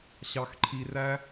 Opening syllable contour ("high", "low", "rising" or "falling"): low